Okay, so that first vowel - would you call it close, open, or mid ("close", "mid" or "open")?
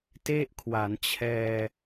mid